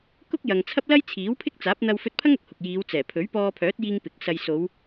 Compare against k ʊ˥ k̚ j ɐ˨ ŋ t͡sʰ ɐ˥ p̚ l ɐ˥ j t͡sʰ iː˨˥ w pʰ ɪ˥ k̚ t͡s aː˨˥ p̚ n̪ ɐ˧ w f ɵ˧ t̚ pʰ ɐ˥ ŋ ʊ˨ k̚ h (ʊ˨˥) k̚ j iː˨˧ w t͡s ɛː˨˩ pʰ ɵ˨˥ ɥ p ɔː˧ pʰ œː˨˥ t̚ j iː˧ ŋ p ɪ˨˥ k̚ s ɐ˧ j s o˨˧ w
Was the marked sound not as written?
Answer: yes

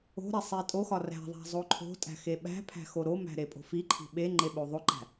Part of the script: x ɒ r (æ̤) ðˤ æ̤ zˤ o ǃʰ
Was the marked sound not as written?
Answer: no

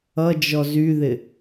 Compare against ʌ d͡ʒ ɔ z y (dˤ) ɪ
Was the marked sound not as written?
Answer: yes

